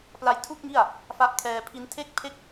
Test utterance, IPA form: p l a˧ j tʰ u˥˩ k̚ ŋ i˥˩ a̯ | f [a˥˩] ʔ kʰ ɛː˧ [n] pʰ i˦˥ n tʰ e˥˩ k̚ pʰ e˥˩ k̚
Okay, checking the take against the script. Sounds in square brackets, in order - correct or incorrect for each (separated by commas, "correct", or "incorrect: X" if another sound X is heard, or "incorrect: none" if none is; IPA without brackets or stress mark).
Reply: incorrect: a˦˥, incorrect: none